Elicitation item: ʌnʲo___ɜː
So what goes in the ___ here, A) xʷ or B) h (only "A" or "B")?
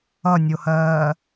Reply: B